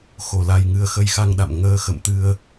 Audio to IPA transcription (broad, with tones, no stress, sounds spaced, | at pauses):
x o˧˩ l a˨˩ j ŋ ɨ˨˩ ə̯ x ə˧ j x a˧ ŋ ɗ a̰˧˨ m ŋ əː˧ x ə̰˧˨ m t̪ ɨ˧ ə̯